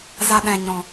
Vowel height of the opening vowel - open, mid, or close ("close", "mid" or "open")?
open